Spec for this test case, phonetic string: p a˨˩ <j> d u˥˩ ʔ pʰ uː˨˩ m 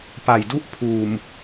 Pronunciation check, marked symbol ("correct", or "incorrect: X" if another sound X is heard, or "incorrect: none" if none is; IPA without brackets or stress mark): correct